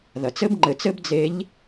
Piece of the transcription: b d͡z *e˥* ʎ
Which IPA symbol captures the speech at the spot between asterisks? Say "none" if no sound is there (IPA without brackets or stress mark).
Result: e˧˥